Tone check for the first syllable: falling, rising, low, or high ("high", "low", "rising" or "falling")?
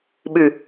low